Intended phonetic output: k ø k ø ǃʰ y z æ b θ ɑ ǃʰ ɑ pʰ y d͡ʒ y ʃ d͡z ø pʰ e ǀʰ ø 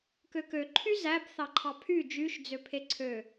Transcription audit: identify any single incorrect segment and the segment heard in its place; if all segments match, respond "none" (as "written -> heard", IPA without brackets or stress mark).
none